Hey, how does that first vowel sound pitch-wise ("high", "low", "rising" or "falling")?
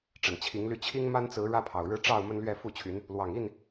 low